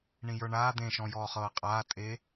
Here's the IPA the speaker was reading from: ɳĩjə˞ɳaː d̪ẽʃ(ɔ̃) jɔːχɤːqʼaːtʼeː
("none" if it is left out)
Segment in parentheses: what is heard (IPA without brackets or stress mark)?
ɔ̃